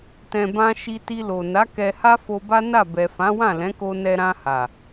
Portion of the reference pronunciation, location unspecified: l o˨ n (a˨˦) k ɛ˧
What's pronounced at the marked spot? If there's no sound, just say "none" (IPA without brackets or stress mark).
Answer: a˨˦